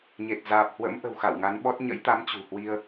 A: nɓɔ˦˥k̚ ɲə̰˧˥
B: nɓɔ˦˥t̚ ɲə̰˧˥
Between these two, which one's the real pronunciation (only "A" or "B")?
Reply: B